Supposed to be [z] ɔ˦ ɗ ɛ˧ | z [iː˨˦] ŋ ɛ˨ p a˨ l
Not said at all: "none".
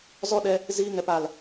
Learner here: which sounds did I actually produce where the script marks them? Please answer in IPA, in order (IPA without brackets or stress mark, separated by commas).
z, iː˧